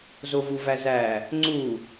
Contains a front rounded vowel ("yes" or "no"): no